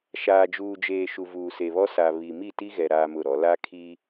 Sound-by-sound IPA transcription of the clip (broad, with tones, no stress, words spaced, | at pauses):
ʃaː˨d͡ʒuː˨d͡ʒeː˨ ʃu˨vuː˨se˨βɔ˦ sa˨ βi˨ mi˦˨ti˦ɣɛ˨ ɾaː˦mʊ˦˨ɾɔ˨˦ la˦kʰi˦